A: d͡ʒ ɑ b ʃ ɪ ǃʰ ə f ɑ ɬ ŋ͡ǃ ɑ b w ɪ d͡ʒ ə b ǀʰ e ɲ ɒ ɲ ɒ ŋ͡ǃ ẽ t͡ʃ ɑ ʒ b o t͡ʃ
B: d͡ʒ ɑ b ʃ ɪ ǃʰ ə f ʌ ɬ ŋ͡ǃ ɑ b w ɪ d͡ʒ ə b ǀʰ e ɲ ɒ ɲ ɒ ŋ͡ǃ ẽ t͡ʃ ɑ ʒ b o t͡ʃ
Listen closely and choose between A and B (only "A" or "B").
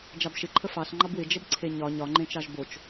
A